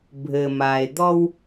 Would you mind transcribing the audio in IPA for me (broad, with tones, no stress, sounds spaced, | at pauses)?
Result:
bʱ ɘ˩ m a˩ e̯ d̪ ɔ˧ w